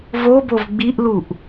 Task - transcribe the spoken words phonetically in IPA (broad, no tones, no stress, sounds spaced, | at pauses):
v o b o v ɡ͡b i ʔ l u ʔ